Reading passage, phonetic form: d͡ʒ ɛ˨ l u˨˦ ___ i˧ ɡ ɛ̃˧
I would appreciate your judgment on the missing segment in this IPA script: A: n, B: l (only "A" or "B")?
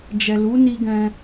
A